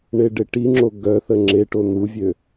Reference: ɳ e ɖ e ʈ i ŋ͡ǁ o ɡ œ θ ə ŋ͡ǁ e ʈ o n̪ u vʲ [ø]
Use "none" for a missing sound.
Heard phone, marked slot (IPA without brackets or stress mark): ø